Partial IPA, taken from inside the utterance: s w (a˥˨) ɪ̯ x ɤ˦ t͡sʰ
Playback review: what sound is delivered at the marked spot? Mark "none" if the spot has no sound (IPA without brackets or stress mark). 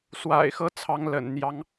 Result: a̰˨˩